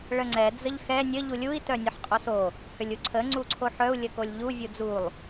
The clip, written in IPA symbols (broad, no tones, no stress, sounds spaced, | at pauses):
ɭ ə ŋ͡ǀ ɛ d͡z ə ʎ x ɛ nʲ ə ʎ u lʲ u i̯ t œ nʲ ə ħ qʼ o s o | h ʏ lʲ u ǀʰ ə ŋ͡ǀ u ǀʰ o ħ œ u̯ lʲ ə k o lʲ ʎ u vʲ u d͡z u lˠ